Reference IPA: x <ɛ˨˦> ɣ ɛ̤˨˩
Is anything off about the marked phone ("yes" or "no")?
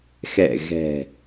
yes